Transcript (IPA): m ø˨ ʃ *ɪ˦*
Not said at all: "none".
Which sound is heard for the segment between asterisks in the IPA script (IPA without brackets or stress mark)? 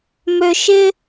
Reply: ɪ˦